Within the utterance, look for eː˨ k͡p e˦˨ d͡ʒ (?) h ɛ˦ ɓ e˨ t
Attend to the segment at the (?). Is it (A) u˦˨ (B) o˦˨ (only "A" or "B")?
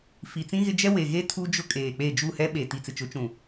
A